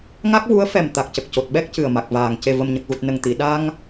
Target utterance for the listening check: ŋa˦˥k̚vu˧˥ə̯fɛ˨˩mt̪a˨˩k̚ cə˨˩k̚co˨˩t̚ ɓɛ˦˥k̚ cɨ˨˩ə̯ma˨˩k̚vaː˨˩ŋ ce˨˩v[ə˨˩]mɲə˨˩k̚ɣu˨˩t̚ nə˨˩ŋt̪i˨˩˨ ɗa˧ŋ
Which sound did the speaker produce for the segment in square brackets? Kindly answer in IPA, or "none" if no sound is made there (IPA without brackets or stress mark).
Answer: ə˨˩